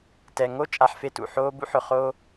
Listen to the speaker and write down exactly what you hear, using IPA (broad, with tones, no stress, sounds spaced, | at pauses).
t ɛ˨ ŋ o˦˨ t͡ʃʼ a˦ ħ f e˦ t ṵ˨ ħ oː˦ b ṵ˦ ħ ʊ˨ χ o˦